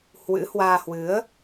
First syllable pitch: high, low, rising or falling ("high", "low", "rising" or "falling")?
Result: rising